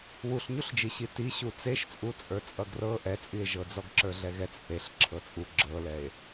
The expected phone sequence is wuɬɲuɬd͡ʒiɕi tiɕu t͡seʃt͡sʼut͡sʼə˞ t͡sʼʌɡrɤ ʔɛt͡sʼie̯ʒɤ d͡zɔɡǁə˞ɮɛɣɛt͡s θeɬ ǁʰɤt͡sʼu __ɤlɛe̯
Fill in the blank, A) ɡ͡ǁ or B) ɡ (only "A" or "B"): A